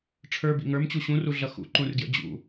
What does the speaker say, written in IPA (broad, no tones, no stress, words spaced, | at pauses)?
ʈ͡ʂʰə˞bḭ ŋə˞mt͡ɕu ɕũruɮʌ xṵǃũrɡjə̰ d͡ʑṵ